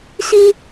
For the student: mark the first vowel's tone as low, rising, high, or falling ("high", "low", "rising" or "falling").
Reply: high